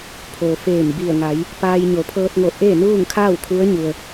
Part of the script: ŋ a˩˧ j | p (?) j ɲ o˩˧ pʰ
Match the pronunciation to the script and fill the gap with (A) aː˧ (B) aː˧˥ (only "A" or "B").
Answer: A